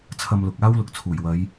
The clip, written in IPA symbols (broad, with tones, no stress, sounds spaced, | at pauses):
t͡sʰ ɐ˧ m l ʊ˨ k̚ aː˥ w l ʊ˨ k̚ t͡sʰ uː˨˩ j w ɐ˨˧ j